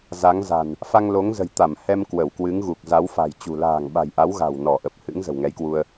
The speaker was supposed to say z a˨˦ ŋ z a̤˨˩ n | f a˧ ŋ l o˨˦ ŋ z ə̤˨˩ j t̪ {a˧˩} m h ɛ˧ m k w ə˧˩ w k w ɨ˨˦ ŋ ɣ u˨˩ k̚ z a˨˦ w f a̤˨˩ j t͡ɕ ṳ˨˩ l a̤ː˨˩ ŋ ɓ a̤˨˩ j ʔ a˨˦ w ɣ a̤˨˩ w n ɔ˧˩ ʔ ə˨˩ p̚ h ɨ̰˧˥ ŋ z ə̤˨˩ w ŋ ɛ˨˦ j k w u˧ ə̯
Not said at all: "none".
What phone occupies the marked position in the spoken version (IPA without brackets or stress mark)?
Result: a˧˩